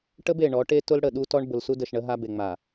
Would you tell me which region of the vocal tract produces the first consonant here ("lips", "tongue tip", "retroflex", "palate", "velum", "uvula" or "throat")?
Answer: retroflex